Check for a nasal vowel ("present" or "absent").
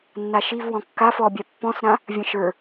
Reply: present